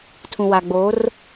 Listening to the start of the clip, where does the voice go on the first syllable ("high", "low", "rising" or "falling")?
low